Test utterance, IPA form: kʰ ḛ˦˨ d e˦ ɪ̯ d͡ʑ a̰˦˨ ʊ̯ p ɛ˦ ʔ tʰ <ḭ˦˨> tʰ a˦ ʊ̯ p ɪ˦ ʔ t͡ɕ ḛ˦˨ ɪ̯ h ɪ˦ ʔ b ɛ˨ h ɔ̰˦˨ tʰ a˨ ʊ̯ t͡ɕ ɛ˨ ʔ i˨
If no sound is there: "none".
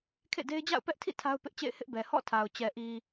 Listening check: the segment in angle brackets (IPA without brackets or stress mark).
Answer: ḭ˦˨